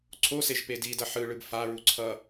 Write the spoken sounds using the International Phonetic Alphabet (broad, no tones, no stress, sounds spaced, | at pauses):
ǀʰ o s e ʒ p e d i d ʌ ħ ɯ ɭ ɯ b f a ɹ u ǀʰ ʌ